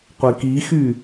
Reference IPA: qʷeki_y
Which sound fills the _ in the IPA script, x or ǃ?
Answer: x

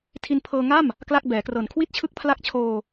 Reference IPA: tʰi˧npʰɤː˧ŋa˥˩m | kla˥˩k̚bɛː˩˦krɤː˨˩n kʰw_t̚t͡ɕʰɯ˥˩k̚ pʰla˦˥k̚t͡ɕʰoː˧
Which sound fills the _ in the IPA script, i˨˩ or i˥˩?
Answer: i˥˩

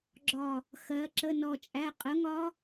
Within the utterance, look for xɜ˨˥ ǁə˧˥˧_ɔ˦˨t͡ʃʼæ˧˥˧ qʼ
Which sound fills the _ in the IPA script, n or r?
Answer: n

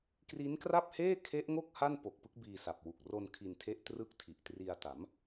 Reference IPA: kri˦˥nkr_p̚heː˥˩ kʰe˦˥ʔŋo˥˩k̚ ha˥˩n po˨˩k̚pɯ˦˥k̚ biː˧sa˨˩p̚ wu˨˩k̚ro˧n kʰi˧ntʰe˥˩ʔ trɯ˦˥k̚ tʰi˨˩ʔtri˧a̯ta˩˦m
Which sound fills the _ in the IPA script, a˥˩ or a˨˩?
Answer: a˥˩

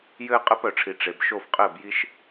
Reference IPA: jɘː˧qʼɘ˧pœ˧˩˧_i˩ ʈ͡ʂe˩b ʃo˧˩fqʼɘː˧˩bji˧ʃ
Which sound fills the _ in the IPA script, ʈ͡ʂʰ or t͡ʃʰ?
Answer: ʈ͡ʂʰ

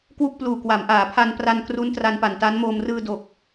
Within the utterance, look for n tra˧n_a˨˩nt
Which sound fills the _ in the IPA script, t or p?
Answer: p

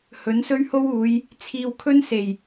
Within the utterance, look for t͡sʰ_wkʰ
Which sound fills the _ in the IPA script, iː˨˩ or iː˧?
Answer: iː˧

